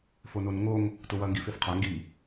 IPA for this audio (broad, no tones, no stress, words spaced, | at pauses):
fononŋoŋ | tʊwɐ ŋɡifefqʰa ŋɡi